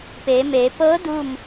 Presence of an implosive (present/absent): absent